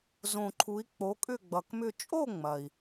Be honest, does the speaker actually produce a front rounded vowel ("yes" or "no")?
yes